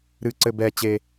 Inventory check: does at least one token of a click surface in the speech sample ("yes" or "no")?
yes